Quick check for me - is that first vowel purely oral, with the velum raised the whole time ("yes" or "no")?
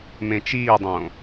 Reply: no